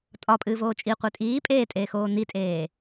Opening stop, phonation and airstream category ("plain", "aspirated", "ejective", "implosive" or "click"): ejective